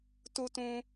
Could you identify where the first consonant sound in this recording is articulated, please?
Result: alveolar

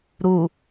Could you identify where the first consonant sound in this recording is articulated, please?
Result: alveolar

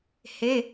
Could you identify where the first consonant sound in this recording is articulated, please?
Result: glottal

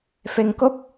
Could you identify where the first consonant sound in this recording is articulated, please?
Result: labial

